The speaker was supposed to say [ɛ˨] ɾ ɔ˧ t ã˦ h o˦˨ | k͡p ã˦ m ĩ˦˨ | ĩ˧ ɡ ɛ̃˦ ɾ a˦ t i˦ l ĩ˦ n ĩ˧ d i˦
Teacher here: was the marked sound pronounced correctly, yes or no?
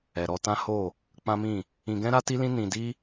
yes